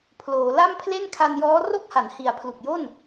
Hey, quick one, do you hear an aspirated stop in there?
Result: yes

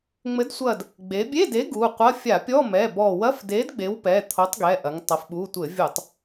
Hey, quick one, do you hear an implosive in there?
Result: yes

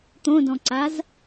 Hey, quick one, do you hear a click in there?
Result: yes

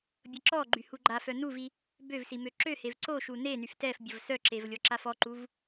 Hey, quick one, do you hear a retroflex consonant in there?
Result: no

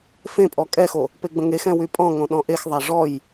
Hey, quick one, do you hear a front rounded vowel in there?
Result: yes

